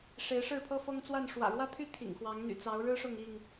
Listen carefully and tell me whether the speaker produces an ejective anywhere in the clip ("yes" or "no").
no